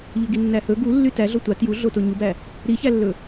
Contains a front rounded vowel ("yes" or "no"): yes